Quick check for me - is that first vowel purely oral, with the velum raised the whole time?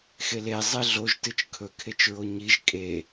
yes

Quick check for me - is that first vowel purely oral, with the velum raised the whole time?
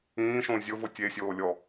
no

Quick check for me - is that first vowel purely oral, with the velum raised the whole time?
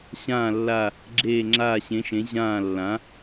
no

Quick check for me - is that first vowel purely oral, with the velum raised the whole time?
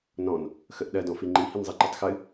no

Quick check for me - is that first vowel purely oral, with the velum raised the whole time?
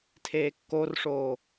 yes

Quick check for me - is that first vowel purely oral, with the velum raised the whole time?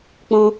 no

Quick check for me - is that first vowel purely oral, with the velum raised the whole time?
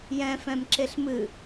no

